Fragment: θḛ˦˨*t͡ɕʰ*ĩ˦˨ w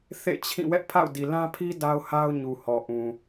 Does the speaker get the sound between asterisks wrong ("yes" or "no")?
no